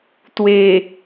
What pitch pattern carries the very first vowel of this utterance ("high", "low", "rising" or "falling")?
low